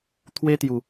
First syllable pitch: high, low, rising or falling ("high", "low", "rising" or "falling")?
high